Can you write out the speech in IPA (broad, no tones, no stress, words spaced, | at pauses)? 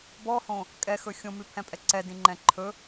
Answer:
bɔhõ | kʼɛxɵ xʲõmʉpʰɛ̃pʼɛ ǀɛdĩŋ͡ǃɛ̃ ǃʰɵ